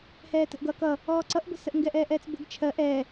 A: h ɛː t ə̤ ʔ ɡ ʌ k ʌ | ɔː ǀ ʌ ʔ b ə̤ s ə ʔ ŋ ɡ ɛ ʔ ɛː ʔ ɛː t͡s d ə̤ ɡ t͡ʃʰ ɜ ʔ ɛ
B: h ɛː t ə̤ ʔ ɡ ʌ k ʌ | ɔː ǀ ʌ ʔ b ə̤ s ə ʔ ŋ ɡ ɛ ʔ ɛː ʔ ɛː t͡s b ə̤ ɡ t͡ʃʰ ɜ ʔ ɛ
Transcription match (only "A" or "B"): B